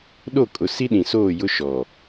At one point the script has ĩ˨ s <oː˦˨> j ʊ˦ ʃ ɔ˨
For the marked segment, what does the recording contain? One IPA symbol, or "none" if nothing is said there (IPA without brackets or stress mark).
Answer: oː˦˨